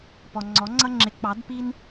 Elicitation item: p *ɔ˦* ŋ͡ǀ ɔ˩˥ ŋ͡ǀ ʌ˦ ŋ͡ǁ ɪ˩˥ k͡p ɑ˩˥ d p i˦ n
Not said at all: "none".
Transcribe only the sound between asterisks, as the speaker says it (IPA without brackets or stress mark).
ɔ˨